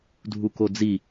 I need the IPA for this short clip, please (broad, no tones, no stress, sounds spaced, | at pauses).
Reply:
dʱ u k o d͡z i